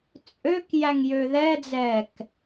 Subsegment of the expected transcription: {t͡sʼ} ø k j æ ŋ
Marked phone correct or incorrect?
correct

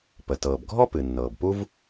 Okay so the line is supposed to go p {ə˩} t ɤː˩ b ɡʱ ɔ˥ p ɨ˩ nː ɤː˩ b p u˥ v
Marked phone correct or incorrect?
correct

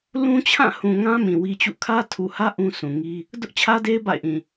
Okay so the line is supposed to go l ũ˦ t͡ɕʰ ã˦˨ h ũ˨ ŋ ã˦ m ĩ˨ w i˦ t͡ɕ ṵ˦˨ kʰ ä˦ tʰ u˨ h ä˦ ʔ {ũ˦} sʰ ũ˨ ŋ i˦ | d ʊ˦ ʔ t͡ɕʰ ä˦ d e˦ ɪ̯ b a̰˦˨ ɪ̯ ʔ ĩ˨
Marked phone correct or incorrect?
correct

